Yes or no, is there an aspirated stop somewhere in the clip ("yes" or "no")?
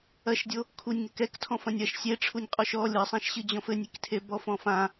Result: yes